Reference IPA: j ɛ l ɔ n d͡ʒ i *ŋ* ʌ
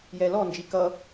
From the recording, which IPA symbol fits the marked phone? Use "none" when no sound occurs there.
k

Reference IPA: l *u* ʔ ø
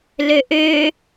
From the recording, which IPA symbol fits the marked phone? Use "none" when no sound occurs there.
ø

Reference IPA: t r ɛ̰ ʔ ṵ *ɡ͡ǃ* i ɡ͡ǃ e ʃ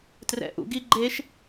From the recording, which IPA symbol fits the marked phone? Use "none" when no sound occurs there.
ɡ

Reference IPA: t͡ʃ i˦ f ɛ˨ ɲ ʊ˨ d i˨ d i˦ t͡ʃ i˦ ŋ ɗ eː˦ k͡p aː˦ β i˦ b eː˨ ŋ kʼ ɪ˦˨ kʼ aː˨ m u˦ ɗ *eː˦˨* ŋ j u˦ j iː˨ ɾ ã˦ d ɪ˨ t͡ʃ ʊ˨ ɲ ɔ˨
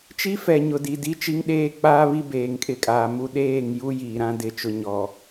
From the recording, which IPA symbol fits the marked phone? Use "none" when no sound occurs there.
eː˦˨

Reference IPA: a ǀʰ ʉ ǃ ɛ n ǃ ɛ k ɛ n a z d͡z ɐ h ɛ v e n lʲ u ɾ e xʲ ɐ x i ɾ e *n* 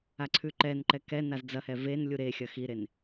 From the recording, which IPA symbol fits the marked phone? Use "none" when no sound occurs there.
n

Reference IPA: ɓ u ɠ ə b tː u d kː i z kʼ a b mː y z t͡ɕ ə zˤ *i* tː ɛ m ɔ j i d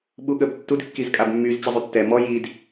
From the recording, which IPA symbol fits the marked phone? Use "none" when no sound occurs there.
y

